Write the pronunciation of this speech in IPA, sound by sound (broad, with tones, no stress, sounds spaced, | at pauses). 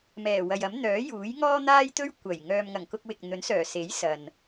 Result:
m ɛː˨˩ w ɐ˨ j ɐ˨˥ m n̪ œː˨˥ j uː˨˥ j ŋ ɔː˥ n̪ aː˥ j t̪ ɵ˥ ɥ kʷ ɐ˨˩ j ŋ œː˨ m ŋ ɐ˨˩ ŋ k ʊ˧ k̚ w ɪ˨ k̚ n̪ ɵ˨˥ n s œː˨˩ s e˨˥ j s ɐ˨ n